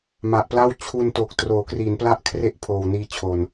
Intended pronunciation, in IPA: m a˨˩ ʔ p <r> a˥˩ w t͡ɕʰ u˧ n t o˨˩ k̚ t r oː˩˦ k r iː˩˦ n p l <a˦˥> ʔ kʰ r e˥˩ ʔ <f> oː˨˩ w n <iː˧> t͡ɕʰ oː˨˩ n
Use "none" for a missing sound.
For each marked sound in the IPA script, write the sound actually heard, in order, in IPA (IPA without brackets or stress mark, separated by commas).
l, a˦˥, pʰ, iː˧